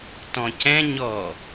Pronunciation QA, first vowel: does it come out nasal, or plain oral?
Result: nasal